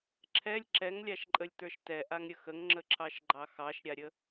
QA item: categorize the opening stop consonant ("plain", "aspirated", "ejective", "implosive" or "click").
click